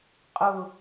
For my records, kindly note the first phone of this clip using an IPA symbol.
qʼ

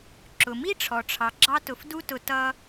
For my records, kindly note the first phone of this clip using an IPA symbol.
ǁ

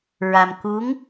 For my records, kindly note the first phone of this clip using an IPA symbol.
ɹ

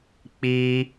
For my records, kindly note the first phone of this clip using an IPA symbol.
k͡p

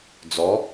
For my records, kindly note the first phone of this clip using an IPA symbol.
d͡z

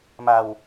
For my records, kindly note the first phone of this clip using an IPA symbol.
m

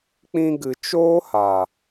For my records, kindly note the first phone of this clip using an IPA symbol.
k͡p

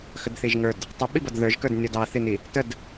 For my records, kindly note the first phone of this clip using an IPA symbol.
x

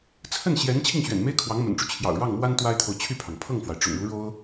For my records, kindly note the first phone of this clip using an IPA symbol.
t͡sʰ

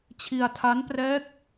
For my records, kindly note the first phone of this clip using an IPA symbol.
t͡ɕʰ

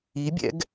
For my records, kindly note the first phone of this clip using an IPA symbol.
i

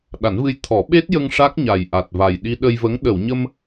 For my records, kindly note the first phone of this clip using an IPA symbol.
ɗ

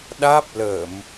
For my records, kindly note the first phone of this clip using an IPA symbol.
ɗ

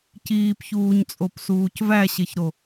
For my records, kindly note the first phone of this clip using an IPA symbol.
c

